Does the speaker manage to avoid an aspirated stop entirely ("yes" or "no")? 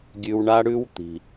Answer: yes